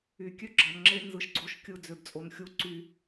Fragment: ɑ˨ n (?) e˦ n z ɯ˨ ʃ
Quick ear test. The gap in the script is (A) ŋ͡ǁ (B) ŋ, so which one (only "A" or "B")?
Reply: A